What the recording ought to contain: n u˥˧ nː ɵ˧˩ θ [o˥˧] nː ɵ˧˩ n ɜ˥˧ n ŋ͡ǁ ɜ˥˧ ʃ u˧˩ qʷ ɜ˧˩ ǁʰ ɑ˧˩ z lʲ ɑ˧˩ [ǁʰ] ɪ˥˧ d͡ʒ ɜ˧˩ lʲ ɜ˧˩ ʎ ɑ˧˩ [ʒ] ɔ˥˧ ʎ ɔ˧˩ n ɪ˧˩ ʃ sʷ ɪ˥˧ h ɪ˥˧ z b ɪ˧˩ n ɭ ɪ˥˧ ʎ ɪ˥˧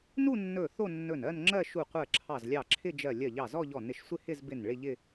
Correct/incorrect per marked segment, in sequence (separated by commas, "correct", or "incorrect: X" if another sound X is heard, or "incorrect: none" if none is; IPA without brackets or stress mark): correct, correct, incorrect: z